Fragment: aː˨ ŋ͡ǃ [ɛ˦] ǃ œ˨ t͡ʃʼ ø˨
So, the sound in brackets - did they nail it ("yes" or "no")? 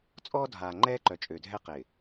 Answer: no